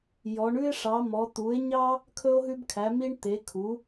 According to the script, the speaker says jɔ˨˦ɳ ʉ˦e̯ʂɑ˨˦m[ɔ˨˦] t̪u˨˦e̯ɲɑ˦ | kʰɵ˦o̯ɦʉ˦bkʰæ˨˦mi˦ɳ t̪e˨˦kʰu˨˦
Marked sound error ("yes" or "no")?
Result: no